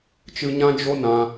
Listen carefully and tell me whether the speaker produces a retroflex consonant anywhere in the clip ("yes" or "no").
no